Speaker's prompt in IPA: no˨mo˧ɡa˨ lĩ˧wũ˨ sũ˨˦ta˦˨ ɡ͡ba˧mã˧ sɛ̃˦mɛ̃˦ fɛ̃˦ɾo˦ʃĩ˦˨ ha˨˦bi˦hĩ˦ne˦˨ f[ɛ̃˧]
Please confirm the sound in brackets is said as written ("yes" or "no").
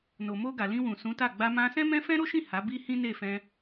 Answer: yes